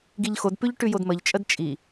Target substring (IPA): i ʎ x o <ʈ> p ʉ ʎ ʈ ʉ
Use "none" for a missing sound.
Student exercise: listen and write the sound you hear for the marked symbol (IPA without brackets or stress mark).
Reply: d